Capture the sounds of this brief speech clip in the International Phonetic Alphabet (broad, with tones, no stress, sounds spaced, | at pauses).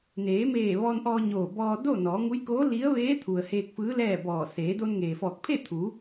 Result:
n eː˩˧ m eː˧˩ ʋ ɔː˧ n ʔ ɔː˧ ɲ oː˧˩ b ɔː˧ d o˥˨ n ɔː˩˧ ŋ u˧˥ j k oː˧˥ l i˧˥ ə̯ ʋ eː˧˥ t̪ʰ u˩ ə̯ h eː˧ k̚ f ɯː˧˥ l ɛː˥˨ b ɔː˧˩ s eː˩˧ d o˧ n ŋ eː˩ f ɔː˧˩ k̚ pʰ e˥˨ t̪ʰ u˩˧